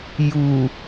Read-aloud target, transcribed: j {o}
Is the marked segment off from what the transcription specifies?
yes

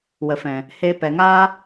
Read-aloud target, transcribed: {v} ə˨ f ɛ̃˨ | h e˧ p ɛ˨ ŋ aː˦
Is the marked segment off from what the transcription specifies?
yes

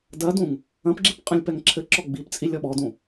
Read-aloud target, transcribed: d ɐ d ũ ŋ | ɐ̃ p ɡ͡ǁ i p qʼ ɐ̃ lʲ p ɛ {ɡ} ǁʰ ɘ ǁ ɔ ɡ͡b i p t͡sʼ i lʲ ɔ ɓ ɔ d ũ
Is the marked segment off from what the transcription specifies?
yes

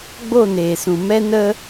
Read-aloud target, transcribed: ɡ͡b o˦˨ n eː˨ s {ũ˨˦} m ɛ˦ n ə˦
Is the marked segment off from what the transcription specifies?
yes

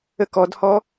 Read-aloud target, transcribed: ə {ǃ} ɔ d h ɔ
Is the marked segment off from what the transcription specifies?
yes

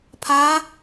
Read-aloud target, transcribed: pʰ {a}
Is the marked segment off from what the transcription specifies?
no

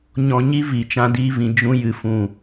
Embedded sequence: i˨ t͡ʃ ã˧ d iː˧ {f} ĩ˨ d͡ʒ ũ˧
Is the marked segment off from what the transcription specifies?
yes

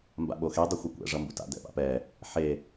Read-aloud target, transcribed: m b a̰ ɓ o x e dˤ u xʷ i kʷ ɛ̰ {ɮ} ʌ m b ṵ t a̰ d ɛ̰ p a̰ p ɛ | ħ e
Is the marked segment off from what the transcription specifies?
yes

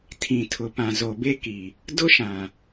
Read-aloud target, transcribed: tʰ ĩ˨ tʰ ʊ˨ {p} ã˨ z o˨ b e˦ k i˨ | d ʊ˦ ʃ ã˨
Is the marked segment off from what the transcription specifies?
no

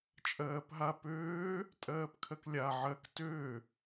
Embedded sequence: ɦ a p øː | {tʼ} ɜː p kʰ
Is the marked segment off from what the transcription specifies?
no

